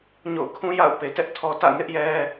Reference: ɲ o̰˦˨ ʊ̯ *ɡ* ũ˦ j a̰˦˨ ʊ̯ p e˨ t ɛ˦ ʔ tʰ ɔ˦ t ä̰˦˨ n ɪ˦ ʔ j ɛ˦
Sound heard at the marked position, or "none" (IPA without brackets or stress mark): kʰ